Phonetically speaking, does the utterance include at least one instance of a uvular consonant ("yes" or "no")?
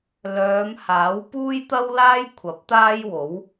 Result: no